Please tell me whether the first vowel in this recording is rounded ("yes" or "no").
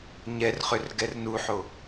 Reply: no